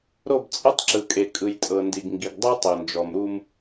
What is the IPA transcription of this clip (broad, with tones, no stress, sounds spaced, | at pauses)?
ɾ o˦˨ b t͡sʼ ɤ˦ tˤ ǁ ɯ˨ kʼ e˨ kʼ ɯ˨ j tʼ ɤ˨ n d i˨ ɡ ŋ ɡ i˨ ɡ dˤ ɯ˦ tˤ o˨ n d͡ʒ ɔ˨ m ɾ u˦ m